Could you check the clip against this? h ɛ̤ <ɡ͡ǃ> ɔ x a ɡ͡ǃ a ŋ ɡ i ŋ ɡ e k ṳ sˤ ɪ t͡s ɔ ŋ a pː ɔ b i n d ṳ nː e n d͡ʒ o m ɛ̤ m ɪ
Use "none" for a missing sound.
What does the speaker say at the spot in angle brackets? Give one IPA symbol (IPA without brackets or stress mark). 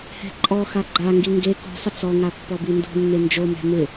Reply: ǃʼ